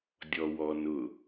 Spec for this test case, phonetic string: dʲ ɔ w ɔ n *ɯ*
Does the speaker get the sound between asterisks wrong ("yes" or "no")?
yes